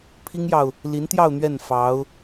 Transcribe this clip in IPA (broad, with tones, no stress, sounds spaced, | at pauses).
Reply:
pʰ i˥ ŋ j ɑ˨ ʊ̯ | l i˧˥ n t̪ j ɑ˥˧ ʊ̯ n̪ ɥ ɛ˥˩ n f ɑ˧˥ ʊ̯